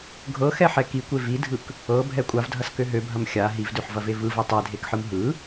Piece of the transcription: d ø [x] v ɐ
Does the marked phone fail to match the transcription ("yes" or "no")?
yes